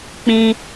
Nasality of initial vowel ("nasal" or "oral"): nasal